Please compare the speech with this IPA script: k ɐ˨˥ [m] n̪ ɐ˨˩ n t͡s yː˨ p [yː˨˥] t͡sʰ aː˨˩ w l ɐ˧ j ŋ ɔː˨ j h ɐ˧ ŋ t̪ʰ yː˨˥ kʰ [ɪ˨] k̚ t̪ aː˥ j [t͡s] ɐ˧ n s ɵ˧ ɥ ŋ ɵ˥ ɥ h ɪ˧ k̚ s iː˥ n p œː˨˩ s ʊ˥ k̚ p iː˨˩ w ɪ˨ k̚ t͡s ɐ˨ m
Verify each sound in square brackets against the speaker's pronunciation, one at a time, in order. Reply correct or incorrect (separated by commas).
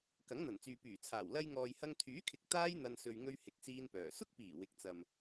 incorrect, incorrect, correct, incorrect